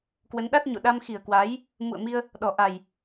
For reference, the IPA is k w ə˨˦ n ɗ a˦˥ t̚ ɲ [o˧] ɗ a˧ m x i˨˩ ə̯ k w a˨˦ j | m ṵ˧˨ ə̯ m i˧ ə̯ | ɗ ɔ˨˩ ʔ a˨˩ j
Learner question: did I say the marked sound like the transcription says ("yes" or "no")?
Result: no